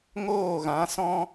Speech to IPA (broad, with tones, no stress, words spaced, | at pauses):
ŋoː˦˨ɣã˨˦sɔ̃˦